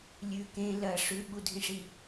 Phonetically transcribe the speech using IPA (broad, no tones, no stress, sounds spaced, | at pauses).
lʲ ʉ k ẽ l ɐ ʂ ʉ ɓ u dʱ ĩ ʂ i